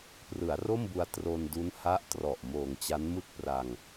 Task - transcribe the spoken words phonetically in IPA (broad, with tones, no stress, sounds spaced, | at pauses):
p r ɯ˩˦ a̯ r o˥˩ m b u˧ a̯ t r o˧ n d u˦˥ n h a˦˥ ʔ t r ɔ˨˩ ʔ m oː˨˩ ŋ t͡ɕ a˦˥ n m ɯ˥˩ k̚ p r a˧ ŋ